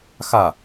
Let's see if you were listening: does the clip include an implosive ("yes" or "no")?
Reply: no